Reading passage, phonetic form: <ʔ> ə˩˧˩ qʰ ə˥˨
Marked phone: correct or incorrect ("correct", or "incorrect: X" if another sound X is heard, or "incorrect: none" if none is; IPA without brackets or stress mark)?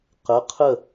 incorrect: q